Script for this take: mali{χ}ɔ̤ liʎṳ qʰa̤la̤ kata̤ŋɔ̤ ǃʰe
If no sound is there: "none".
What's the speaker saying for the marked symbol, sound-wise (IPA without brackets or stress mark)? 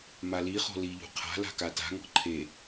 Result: χ